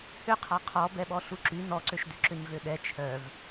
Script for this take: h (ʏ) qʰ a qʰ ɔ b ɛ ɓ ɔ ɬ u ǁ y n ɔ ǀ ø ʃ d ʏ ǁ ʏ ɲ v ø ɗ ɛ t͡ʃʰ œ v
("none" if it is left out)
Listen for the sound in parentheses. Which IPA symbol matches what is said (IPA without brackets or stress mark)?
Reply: ʏ